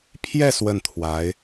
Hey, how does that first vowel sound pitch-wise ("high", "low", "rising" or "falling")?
falling